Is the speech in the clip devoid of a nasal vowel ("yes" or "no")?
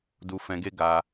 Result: no